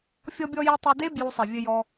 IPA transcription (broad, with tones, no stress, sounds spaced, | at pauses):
fʲ ɔ˧ bʲ ɔ˧ j e˧ tˤ ɘ˧ d e˦ b j u˧ sˤ ɛ˨ vʲ ɘ˧ j ɔ˧